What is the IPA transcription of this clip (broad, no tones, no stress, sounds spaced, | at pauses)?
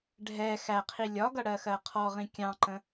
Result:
ɖʱ ɛ x æ qʰ i lʲ ɒ ɡ ʌ ɽ ɜ x ɜ qʰ ɔ ʁ ĩ kʲ ɑ̃ ǃ ə̃